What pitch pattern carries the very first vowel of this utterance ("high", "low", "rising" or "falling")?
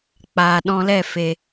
low